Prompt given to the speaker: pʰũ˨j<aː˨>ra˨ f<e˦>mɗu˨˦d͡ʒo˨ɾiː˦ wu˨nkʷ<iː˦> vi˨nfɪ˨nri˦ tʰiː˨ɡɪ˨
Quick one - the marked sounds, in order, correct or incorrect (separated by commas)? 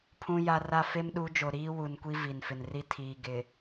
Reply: incorrect, correct, incorrect